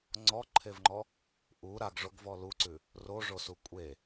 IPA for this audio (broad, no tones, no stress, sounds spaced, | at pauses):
ŋ͡ǀ ɔ ǃʰ e v ŋ͡ǃ ɔ | ʔ u ɾ a ɡ ʐ o ɡ v ɔ l u ǀ ʉ | r o ʐ o s u kʷʼ e